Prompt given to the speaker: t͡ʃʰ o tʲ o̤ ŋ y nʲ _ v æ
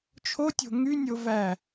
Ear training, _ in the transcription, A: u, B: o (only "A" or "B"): B